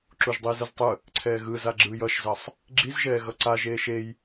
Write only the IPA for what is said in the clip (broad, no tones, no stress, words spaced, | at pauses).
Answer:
ǁuʒdˤiːzɯztˤɯ | ǀʰɛːɣɯ zaɡ͡ǁɯj ʌʃzʌsˤ | ɡ͡ǁizʒɛː ɣʌǀa ʒeːʃej